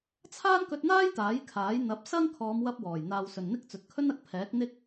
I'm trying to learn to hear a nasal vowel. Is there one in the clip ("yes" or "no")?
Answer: no